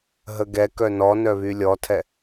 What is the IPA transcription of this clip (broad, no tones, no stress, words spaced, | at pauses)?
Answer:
ɦəɡɛkœ nɔnœ βylʲɔtʰɛ